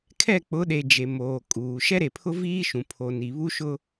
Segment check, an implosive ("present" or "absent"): present